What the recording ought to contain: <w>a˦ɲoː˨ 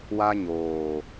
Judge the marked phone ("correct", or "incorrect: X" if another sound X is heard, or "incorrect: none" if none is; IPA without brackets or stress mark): correct